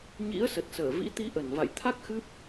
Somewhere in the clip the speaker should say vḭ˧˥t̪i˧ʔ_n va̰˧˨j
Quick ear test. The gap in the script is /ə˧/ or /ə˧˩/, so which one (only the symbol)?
ə˧˩